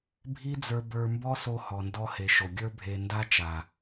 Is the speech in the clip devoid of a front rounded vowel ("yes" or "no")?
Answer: yes